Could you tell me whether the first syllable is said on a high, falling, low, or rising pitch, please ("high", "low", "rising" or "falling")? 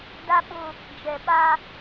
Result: high